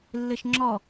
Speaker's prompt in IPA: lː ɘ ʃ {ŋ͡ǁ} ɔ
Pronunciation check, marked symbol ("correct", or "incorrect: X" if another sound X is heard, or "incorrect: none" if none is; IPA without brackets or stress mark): correct